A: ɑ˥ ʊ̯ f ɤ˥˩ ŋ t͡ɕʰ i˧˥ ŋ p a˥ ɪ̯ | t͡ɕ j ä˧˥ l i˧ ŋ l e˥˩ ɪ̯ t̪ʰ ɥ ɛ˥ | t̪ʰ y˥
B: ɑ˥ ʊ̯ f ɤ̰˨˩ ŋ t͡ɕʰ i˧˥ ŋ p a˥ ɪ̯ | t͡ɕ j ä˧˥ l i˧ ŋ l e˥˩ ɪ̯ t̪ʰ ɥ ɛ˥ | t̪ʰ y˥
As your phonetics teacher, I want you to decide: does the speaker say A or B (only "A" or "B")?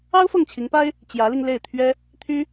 A